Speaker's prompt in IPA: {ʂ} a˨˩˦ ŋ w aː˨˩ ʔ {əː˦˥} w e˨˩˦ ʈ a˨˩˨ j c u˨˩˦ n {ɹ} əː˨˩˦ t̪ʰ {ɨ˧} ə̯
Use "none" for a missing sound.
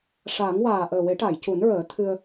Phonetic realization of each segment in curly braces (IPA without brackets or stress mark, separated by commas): ʂ, əː˨˩, ɹ, ɨ˧